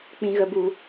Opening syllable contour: low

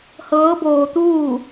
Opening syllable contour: rising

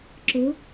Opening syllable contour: rising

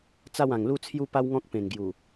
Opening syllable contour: falling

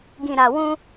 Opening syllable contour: low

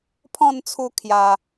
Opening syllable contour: falling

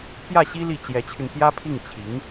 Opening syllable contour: falling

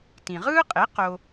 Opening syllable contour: low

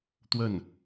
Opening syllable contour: falling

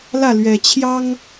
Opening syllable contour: falling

